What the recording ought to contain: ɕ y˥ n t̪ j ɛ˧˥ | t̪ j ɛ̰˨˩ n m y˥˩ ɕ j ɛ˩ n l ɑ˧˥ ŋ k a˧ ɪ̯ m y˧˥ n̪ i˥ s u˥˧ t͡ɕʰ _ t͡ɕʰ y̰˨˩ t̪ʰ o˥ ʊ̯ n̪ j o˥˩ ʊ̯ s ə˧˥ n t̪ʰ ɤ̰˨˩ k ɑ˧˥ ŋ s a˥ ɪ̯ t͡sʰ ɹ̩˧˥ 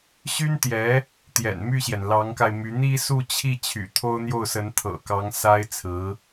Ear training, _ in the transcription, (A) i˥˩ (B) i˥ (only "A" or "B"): A